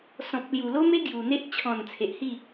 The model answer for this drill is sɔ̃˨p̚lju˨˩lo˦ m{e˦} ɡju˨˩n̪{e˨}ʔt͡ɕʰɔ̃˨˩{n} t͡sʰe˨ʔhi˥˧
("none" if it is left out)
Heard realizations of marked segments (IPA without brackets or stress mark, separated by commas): e˦, e˦, n